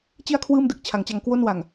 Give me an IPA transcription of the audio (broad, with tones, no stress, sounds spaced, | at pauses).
t͡ɕ i˥˩ a̯ kʰ w ɯː˥˩ m d ɯ˥˩ k̚ t͡ɕʰ a˩˦ ŋ t͡ɕ a˧ ŋ k w o˥˩ n w a˨˩ ŋ